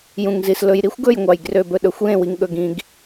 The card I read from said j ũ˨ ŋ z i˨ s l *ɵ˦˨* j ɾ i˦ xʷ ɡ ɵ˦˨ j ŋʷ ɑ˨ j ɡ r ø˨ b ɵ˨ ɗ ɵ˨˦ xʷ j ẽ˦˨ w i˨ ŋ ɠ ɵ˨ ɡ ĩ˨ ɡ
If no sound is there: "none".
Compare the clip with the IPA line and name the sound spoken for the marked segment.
ɵ˨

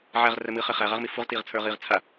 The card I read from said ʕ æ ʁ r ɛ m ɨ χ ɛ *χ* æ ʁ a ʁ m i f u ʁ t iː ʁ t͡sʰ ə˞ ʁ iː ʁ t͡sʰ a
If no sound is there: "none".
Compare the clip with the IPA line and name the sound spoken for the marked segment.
χ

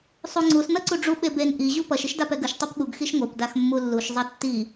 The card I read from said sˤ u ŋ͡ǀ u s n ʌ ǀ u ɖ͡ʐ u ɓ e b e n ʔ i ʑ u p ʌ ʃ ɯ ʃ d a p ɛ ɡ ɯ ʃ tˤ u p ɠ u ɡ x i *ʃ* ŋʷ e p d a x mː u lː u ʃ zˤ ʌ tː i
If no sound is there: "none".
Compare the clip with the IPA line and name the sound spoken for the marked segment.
ʃ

